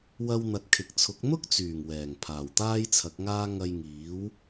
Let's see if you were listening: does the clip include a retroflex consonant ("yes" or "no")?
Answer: no